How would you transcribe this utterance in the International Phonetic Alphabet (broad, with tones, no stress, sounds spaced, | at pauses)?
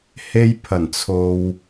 h e˧ j pʰ ɐ˨˩ n t͡sʰ o˨ w